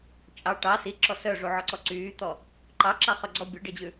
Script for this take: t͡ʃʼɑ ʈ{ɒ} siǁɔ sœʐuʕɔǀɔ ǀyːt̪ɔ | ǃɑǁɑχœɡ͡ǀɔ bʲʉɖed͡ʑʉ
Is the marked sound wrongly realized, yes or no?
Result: yes